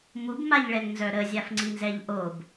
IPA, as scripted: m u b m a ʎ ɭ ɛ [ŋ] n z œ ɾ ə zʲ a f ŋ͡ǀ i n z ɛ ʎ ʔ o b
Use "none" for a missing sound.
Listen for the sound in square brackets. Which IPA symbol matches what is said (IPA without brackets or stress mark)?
ŋ